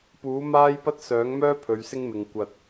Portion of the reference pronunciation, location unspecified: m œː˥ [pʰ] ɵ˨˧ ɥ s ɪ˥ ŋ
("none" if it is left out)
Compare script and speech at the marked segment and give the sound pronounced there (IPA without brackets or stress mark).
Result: pʰ